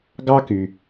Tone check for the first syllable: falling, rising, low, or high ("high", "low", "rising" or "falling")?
high